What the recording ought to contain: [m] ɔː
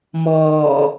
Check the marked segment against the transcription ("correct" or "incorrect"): correct